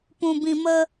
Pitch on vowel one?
low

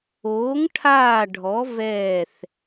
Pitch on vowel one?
rising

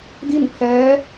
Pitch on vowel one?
falling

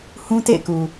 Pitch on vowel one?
high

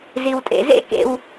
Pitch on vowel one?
low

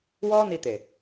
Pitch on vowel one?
high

